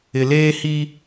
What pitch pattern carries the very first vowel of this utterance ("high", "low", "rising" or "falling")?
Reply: low